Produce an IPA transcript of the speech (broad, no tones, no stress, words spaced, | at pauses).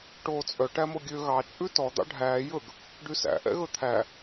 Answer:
ʈoːt͡sʼœ ʈæmoɡʲø ɣɑ t͡ʃʼʉtɔ d̪ɑ̰ɖʱæː jɵɡ | ɖysæ̰ ʔɛ̰ɣɵt̪ʰæ